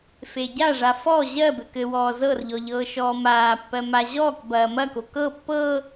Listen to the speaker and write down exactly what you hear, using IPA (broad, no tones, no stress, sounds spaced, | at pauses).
f e ɟ a ʐ a f ɔ ʑ ɜ b ɘ k ɘ w ɔː z ɤ r ʎ ɔ ʎ ɤː ʃ ɔː m aː pː ɜ m a ʑ ɔː k b ɐː m ɐ k o k ɤ pː ɤ